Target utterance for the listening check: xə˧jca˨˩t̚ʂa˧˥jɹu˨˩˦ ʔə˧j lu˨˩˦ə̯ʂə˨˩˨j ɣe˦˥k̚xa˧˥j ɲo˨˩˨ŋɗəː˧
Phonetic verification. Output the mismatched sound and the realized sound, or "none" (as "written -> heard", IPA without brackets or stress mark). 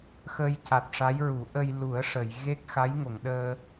ɲ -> ŋ